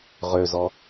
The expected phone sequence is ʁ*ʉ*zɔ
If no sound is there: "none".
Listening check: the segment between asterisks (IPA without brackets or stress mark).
ø